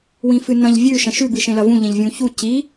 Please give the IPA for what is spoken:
w ĩ f ɨ n ɐ̃ ʎ vʲ ʉ ʃ ɐ̃ ʃ ʉ b ɨ ʃ ẽ l ɐ v ũ ʎ ẽ ʎ vʲ ũ ç u c i

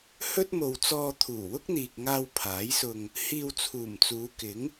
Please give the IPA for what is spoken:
h ɵ˥ t̚ m o˨ w t͡s ɔː˧ t̪ʰ uː˨˩ w ʊ˥ k̚ n̪ iː˨ k̚ ŋ aː˧ w pʰ aː˨˥ j s ʊ˧ ŋ | h iː˧ w t͡sʰ uː˨˩ m t͡s uː˨˧ k ɪ˨˥ ŋ

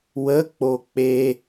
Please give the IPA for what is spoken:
w ə k͡p o k͡p e

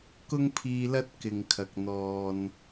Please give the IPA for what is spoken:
k ʊ˥ ŋ pʰ iː˧ l ɐ˥ t̚ k ɪ˨ ŋ kʰ ɐ˨ k̚ n̪ ɔː˨ n

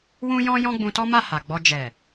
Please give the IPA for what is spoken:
w ũ˦ j ɔ̃˦ j ɔ̃˦ ɡ͡b ũ˧ t ɔ˦ m a˦˨ h a˨ ɡ͡b ɔ˧ d͡ʒ ɛ˨

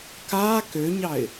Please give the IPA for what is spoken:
k a k ø ɲ ɑ ɪ̯

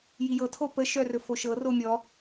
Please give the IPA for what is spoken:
j i j ɤ tʰ o p ə ʃ œ r ɵ f o ʃ ɤ r o mʲ ɔ

